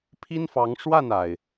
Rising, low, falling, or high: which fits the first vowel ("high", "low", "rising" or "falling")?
high